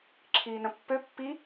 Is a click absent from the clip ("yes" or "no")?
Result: no